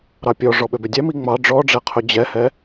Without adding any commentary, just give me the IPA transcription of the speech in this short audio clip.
ɾɑpʲɔ ʐɔɓøbødʲæ miŋ͡mɑ ɖ͡ʐɔɖ͡ʐɛqʰɵ d͡ʑɛhɛ

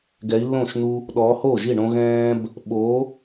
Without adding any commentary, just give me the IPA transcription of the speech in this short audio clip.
ɡɛ˨˦i̯lːõ˥˩ʃnu˦ | ɗɔː˨˦hoː˥˩ʒi˥˩ɳõ˦ ɣɛ̃ː˦b | ɓo˨˦

